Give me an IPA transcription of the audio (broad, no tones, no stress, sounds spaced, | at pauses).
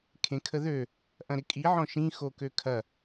kʰ ẽ kʰ ə ð ø | ʔ ɐ̃ ɾ ɪ kʼ i ʕ ɔ̃ ʃ ĩ x o k ø kʰ ɐ